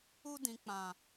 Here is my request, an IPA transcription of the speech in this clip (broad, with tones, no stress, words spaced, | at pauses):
u˧dĩ˨k͡pã˨